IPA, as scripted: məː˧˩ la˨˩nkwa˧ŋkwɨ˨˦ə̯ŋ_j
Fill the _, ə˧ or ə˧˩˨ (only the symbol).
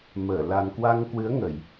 ə˧˩˨